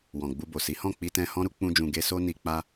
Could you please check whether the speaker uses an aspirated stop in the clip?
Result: no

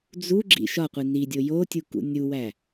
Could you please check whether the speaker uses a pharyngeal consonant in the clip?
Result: no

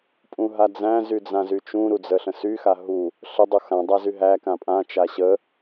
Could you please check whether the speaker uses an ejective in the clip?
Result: yes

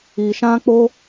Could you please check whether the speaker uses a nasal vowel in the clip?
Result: yes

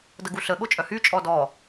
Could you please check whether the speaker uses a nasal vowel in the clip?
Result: no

